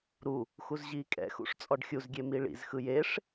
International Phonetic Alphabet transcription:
ɾu | xuzʑiːkʼɛ̰xṵʂ t͡sʼɔɖxʲuzɡʲe miɭḭzxɯ jeʂ

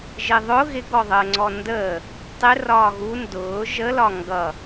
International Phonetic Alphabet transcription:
ʒɪðˤʊ ɣɪɡɔðˤəːŋ͡ǀɔ ndəː | tˤɪrɒː ɣu ndʊː ʒəlɒ ŋɡʌ

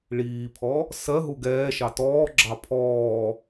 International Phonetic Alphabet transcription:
ɭiːpʰɔ | sɜɦu ɡɛːʃɑ tɔːɡ͡ǁɑ pʰɔː

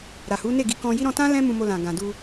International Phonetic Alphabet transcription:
ɾa˨hu˨˦ne˦˨ɡi˨˦ kɔ̃˧ji˦ ɾɔ̃˧tã˦lɛ̃˦ mũ˧mo˧lã˨ ɡã˨du˧

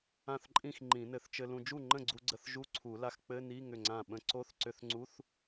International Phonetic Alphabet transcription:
ã˥˩θǃʼĩ˥˩x ŋ͡ǃĩ˨˩˦nɘ˨˩˦θt͡ʃɘ˧lũ˧ d͡ʒu˥˩ŋ͡ǃə̃˥˩ɡ͡ǀu˧ ɡ͡ǀə˧θ ʒu˧˥˧ǀʰu˨˩˦la˧x k͡pɘ˧˥˧ ni˧˥˧ ŋʏ˥˩ŋ͡ǀã˥˩ ɓə̃˧ ǀo˧˥˧θǀʏ˧θŋ͡ǀu˧˥˧θ

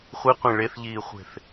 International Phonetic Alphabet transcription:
χʷiqʷẽ ɭeθʎiːχʷe̤θ

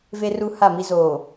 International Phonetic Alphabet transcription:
ve˦ru˦ ha˦˨mi˦ zoː˨

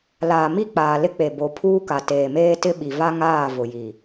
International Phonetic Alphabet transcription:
laː˨mi˦˨k͡paː˨ lɪ˦k͡pe˨ bo˨˦pʰuː˦ka˨ teː˨meː˦tɪ˦ ɓi˨va˦ŋaː˦˨ vʊ˨ji˨

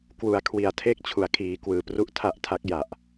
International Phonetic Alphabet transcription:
kwu˩˦a̯kʰwi˨˩a̯tʰeː˥˩k̚t͡ɕʰu˨˩a̯ kʰiː˩˦kwɯː˨˩pru˦˥ʔ tʰa˦˥ʔtʰa˦˥k̚ ja˨˩ʔ

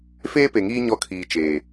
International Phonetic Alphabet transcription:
feː˦pe˨ŋiː˦ ɲɔ˦˨kʰiː˨ t͡ʃeː˨

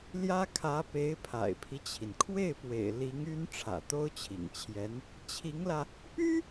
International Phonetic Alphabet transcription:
ljä˥kʰä˧˥ pe˧˥ɪ̯pʰa̰˨˩ɪ̯pʰi˦t͡ɕʰi˩n kʰwe˥˩ɪ̯pwḛ˨˩ɪ̯ li˧˥ŋy˥n ʈ͡ʂʰä̰˨˩t̪o˥ʊ̯t͡ɕʰḭ˨˩ŋt͡ɕʰjɛ˧˥n | t͡ɕʰi˧˥ŋlä˧ | py˥

